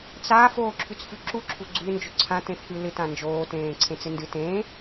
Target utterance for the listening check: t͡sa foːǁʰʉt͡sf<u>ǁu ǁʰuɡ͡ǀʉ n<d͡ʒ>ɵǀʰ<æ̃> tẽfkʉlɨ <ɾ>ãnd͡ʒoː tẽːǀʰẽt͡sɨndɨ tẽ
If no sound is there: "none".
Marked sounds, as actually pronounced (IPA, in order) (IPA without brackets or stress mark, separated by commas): ʉ, d͡ʒ, ã, t